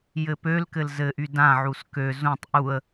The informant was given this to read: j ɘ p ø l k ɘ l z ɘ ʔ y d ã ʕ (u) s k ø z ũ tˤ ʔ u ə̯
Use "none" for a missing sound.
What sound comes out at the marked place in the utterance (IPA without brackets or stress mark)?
u